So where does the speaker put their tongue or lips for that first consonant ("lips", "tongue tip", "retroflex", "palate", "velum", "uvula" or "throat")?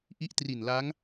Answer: throat